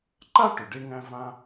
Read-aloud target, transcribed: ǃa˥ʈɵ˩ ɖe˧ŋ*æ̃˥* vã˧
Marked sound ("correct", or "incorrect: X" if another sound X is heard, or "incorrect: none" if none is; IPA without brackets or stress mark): incorrect: æ̃˧